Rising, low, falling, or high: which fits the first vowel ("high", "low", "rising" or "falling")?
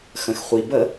low